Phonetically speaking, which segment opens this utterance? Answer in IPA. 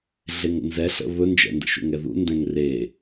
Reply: ɮ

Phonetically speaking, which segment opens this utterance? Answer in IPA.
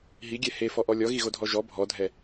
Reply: ɦ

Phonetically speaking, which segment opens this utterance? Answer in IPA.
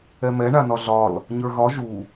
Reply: ɛ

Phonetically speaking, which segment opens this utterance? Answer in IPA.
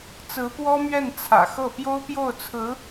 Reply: t͡s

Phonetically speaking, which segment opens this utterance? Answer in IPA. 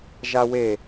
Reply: ʒ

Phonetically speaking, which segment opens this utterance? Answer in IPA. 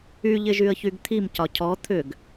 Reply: y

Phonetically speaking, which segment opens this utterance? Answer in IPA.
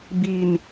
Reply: b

